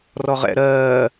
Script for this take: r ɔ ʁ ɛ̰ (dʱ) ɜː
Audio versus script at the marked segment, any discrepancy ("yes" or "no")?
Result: yes